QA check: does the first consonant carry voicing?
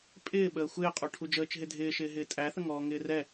no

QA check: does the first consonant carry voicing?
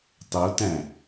no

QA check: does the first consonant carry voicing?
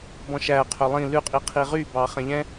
yes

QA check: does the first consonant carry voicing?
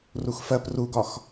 yes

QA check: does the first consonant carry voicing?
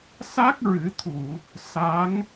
no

